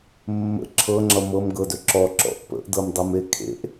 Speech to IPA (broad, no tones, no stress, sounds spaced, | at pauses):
mː ə̰ ǁʰ ɤ ŋ͡ǁ ʌ m ɤ m ɡ ɤ d ɵ ǁ ɔ ǁ ɔ̰ ʔ p ə̰ ʔ d ɤ m dˤ ʌ m e kʰ ḛ ʔ